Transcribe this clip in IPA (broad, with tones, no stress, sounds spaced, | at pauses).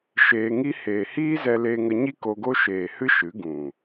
ʃ eː˧ ŋ i˦ h eː˨ h iː˦ z ɛ˧ l eː˧ ŋ ə˧ ɲ i˦ k o˧ ɡ o˦ ʃ eː˨ h ɨ˦ ʃ ɨ˨˦ ɡ ũ˨